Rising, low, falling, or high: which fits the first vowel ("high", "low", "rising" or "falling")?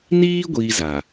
high